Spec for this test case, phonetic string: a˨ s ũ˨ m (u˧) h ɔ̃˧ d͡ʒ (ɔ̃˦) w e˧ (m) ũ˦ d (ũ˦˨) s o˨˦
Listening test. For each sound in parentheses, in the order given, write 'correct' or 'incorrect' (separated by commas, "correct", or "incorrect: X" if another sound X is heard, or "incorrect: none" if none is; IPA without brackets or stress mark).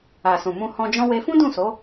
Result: incorrect: ũ˧, correct, incorrect: f, correct